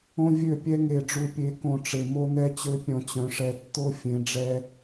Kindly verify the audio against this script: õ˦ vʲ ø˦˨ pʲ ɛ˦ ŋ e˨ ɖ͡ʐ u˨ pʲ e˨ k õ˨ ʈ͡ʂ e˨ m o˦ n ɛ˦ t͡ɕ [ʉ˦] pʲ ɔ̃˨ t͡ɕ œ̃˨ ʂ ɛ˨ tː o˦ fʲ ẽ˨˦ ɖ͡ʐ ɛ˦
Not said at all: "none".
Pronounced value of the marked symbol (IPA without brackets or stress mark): ø˦